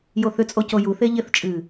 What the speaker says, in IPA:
j o θ ʏ t͡sʼ o c o j u θ e ʎ ɪ θ t͡ʃʼ ɨː

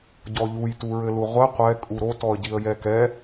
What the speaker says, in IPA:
ɟ ɔ ʎ u j t u ɹ ɘ l u ʁʷ ɘ qʷ ɛ kʼ u ɾ o t ɔ ə̯ ɟ i ə̯ j ɛ k ɛ

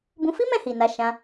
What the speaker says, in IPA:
b ũ˧ f i˦ m ɛ̃˦˨ h i˨ n a˧ ʃ ã˧

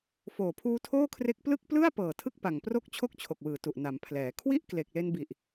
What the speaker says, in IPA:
f oː˨˩ pʰ uː˦˥ tʰ oː˥˩ kʰ r e˦˥ k̚ p l ɯ˥˩ k̚ p l ɯ˥˩ a̯ p ɤː˨˩ tʰ ɯ˥˩ k̚ p a˨˩ ŋ p r o˥˩ k̚ t͡ɕʰ o˥˩ k̚ t͡ɕʰ o˨˩ k̚ w ɯː˨˩ t u˨˩ ʔ n a˩˦ m pʰ l ɛː˩˦ kʰ w i˥˩ ʔ k l e˨˩ k̚ l e˧ n b i˨˩ ʔ

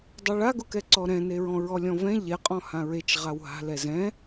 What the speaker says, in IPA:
dˤ e ɭ a ɡ ʊ k ɛ ǀ ɔ ɾ ɛ̃ n e ɹ ɔ̃ ɹ ɔ lʲ ɔ̃ v ɛ̃ ʎ ɛ qʼ ɔ̃ h ã ɹ e t͡ʃ ʁ a w ɦ a̤ l ɛ z ɛ̃

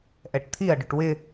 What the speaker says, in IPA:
ʔ ɛ ʈ t̪ʰ i ɐ̯ ɖ ʊ ʈ w ɪ

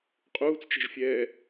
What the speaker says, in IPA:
qʼ uː t͡s t͡ʃ ɛ̤ ʒ fʲ ɛː

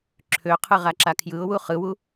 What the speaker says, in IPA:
ǁʰ ø qʰ ɯ ʁ a ǁ a kʰ j ɯ ʊ̯ w u χ ɯ w u

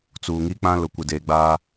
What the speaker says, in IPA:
t͡s uː˨ ŋ i˦ k͡p ã˦ l ʊ˨ kʷ ɪ˨ d eː˨ ɡ͡b aː˦

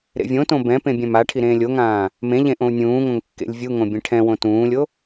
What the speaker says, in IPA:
ɾ ḛ vʲ õ t õ b ɛ̃ p ẽ bʲ ɛ̃ m a ʈʰ i ɾ ẽː lʲ o ŋ ãː | m ẽ ʎ ẽ ʔ õ u̯ nʲ ũː ŋ õ ŋ kː ḛ lʲ vʲ u ŋ õ bʲ ẽ ʈʰ ɛ̃ w õ t ũː lʲ o

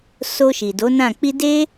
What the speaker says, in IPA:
s o˧ ʃ i˨ d o˨˦ n ã˦˨ k͡p i˧ d e˦

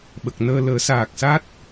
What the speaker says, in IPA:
ɓ ə˨˩ k̚ n əː˧ l əː˨˩˦ s aː˨˩ k̚ s a˦˥ t̚

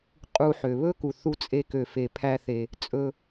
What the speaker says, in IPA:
qʼ u˧ ħ ø˩ β ɵ˥ k u˩ θ u˧ t͡sʼ e˧ k ø˩ f e˩ pʰ æ˧ θ e˩ | t͡sʼ ɵ˧

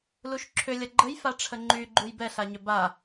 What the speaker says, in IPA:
l u ʃ ǁʰ ʏ lʲ ɐ ɡ͡ǃ ə j f a ʈ͡ʂʰ ə ŋ͡ǃ y ɡ͡ǃ u j b ɛ ɬ a ɲ ʏ b a

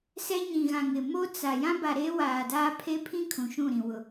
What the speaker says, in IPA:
s ɛ˦ ɲ ĩ˨ ɣ ã˨ ŋ ɪ˨ m o˦ t͡s a˨ j ã˦ b a˨ ɾ eː˦ w aː˨ d aː˦ pʰ e˦ pʰ ĩ˦ kʰ ũ˨ ʃ ũ˦˨ ɾ ĩ˨ w ʊ˨

